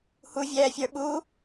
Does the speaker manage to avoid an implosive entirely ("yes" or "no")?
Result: no